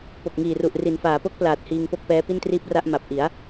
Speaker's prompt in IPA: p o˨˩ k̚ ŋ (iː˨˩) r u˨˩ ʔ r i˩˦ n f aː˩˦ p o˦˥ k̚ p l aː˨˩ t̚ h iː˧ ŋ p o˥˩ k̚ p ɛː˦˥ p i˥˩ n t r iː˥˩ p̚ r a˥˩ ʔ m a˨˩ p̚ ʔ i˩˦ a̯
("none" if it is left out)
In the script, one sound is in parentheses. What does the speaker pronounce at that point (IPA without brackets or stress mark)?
iː˨˩